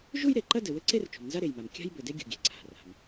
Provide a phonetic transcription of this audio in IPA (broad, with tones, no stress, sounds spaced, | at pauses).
ʒ u˥ j ɾ e˩ ǃ ɐ˥ d ɘ˩ w ɘ˥ ǀ e˥ r t͡ʃ ṳ˩ m n z a˥ ɾ e˩ j m a˩ m kʲ a̤˥ j b ɘ˩ d e˥ ɡʲ ṳ˩ ɡʲ e̤˩ ǀʰ a̤˩ r a̤˩ m